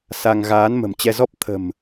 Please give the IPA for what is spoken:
s a˧ ŋ ɣ aː˨˦ n m ə̤˨˩ m t͡ɕ ɛ˧ z ɔ˦˥ p̚ t̪ʰ ə̤˨˩ m

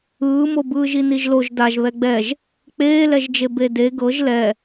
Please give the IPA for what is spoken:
ɯː m o b ɯː ʒ i n i ʒ l o ʒ d a ʒ β ɛ ɡ͡b ɛ ʒ | k͡p eː l ɛ ʒ d͡ʒ e b e d e ɡ ɤ ʒ l ɛ

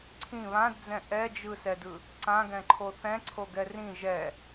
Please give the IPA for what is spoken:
ǀʰ ĩ β ã d d͡z ɛ̃ ʔ ɛ d͡ʒ ɯ s ɛ d ɯ | ǀ ã ɡ ɛ̃ ǃʰ o θ ɛ̃ ǀʰ o ɡ ɛ r ĩ ʒ ɛ

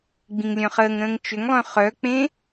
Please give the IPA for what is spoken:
ɡ͡b ĩ ŋ lʲ œ̃ χ əː ŋ ɾ ə̃ː ŋ t͡ʃ ʏ ŋ lˠ œ̃ χ œ k͡p ẽ

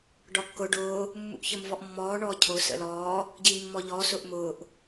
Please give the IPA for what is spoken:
ɖ ɒ kː ʊ ɖ ʊː | mː ṵ ʔ ç ə m v ɔ ʔ mː ɔː ɳ ɔː cʰ ʊ s ə̰ l ɔː | ɟ i mː ɔ ʎ ɔ s ʊ ʔ m ʊː ʔ

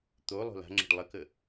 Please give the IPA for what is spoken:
t̪ o lˠ o̤ l a̤ ŋ͡ǁ ə̤ ɖ lˠ ə k ə

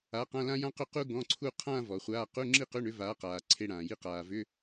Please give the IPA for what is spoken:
a˨˥ q ã˧˥˧ l ã˥ j ã˥ q ʏ˥˧ q u˥ ɡ ɔ̃˧˥˧ ǀʰ u˥˧ qʰ ã˥˧ v ɔ˩ χʷ aː˧˥˧ q u˧˥˧ ŋ͡ǁ i˥˧ q ʏ˧˥˧ ɳ ʏ˨˥ v aː˨˥ q aː˩ ǀʰ e˧˥˧ ɽ ãː˩ j i˥˧ q aː˩ v ʏ˧˥˧

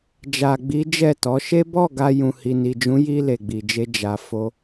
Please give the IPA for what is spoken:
d͡ʒ a˨ ɡ͡b i˨˦ d͡ʒ ɛ˦˨ t ɔ˨˦ ʃ e˦ b ɔ˦˨ ɡ a˧ j ũ˨ h i˨ n i˨ d͡ʒ ũ˨˦ j i˧ l e˨ ɡ͡b i˨ d͡ʒ e˧ d͡ʒ a˨ f o˧

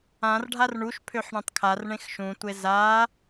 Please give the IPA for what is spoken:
ã r ɖʱ a r ɳ u ʃ pʰ ø ħ ɳ ẽ tˤ kʰ a r ɳ ẽ x ʃ ũ tʷ e z a

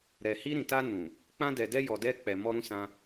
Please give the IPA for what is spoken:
ɾ ɛ˨ h i˧ ɾ ĩ˨ t a˧ n ũ˨ | k͡p ã˧ d ɛ˨ d ɛ˧ j ɔ˨ d ɛ˧ k͡p ɛ˨ m ɔ˧ ɾ ũ˧ s ã˧

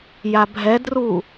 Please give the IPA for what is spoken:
j a bʱ ɛ d r u

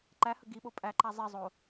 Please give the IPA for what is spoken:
ǃ æ h ə ɡ i ɓ o pʼ æ ǃ æ zˤ i zˤ o

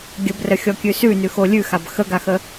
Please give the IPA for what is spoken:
ɡʲ ə b r ə xʲ ɔ kʲ ʉ s ʉ n ʉ x o lʲ ʉ x a b x ə ɡ a x ə

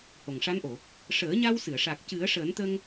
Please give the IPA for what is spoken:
h o˨˩ ŋ ʂ a˧˥ n ʔ o˨˩˨ | ʂ əː˨˩˦ ɲ a˧ w s ɨ˨˩˨ ə̯ ʂ a˨˩ k̚ c ɨ˨˩˦ ə̯ ʂ əː˨˩˦ n t̪ ə˧ ŋ

